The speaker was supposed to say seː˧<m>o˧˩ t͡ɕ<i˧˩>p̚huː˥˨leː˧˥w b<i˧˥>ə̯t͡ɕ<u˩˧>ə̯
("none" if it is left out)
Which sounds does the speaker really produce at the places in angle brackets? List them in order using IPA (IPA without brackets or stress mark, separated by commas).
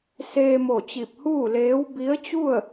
m, i˧˩, i˧˥, u˥˨